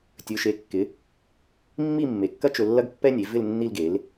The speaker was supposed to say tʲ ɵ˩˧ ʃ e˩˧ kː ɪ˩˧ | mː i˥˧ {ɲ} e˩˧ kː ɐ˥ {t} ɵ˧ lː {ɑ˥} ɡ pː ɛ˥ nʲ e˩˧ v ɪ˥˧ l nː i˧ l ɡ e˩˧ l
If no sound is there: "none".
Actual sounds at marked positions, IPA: mː, t͡ʃ, ɐ˥

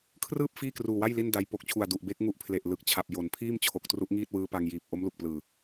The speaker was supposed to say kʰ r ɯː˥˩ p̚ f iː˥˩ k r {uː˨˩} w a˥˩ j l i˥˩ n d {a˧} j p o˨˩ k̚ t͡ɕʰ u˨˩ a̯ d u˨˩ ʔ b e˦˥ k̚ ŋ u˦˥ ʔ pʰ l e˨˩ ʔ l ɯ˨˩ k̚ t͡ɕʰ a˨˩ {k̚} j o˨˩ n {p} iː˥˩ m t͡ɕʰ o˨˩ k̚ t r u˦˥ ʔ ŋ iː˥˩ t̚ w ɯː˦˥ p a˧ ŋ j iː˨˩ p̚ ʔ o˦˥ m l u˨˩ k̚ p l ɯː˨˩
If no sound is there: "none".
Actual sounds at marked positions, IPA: uː˨˩, a˧, p̚, pʰ

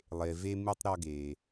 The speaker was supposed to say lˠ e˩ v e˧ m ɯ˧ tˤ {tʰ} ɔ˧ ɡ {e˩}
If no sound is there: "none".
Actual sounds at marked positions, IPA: ɾ, e˩

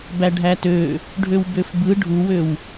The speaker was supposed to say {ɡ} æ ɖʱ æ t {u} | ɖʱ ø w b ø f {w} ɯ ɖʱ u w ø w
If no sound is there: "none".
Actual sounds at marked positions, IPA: b, ø, b

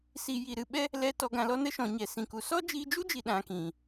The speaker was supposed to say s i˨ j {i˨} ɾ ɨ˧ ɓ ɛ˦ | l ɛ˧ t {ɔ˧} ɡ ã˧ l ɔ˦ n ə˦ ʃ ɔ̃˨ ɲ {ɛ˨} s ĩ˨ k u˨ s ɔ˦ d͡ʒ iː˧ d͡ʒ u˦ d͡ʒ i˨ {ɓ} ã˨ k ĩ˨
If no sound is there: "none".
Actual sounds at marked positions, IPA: i˨, ɔ˧, ɛ˨, ɗ

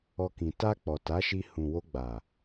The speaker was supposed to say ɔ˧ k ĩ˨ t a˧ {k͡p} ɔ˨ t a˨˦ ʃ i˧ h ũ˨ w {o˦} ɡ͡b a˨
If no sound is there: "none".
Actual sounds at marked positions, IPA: k͡p, o˧

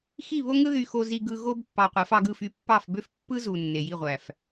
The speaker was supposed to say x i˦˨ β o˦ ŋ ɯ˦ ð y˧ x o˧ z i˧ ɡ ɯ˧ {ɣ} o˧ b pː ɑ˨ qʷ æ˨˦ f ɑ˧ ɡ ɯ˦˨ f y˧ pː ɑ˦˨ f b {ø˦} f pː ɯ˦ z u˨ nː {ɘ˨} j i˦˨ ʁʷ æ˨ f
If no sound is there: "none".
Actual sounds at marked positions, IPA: ɣ, ø˦, e˨

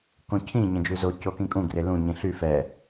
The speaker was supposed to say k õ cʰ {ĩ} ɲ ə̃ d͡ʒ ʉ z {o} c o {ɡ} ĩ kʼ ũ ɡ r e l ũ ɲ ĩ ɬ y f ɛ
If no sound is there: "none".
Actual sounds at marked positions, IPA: ĩ, o, k

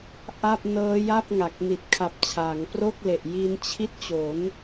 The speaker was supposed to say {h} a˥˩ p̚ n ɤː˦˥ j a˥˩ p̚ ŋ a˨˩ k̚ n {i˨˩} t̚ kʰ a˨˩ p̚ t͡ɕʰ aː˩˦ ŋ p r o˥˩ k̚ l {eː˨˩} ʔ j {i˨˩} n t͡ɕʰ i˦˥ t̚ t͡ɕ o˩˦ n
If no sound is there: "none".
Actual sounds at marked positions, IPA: ʔ, i˨˩, e˨˩, i˧

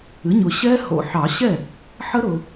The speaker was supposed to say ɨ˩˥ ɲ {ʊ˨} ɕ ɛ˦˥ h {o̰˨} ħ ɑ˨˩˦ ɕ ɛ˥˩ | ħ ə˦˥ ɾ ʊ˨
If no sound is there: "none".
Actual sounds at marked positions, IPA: ʊ˨, o̰˨

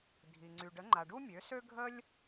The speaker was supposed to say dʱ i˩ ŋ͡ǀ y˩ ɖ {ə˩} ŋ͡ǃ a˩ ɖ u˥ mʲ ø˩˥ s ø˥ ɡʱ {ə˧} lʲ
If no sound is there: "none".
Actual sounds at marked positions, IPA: ə˩˥, ə˥

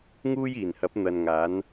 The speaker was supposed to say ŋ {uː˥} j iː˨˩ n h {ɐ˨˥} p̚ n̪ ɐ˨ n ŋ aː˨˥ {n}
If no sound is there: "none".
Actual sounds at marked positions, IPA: uː˥, ɐ˨˥, n

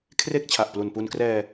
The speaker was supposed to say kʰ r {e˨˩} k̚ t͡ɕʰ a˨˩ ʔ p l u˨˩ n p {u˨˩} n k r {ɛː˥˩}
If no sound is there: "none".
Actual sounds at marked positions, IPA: e˥˩, u˧, ɛː˧

